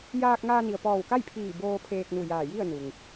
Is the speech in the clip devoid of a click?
yes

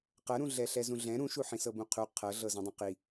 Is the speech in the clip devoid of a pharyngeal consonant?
no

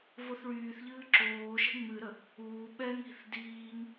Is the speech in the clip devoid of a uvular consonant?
yes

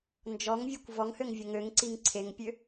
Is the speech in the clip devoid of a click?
no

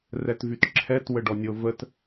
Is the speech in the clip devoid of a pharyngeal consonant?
yes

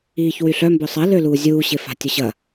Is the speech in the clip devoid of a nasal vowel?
yes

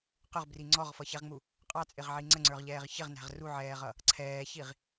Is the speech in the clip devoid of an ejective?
no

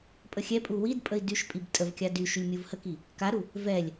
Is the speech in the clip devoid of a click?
yes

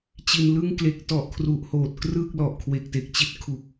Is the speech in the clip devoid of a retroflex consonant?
yes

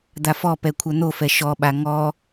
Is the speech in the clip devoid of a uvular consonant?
yes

